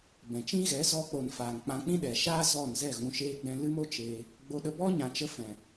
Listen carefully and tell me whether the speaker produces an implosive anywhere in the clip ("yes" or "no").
yes